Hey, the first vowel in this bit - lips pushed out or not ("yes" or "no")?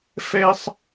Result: no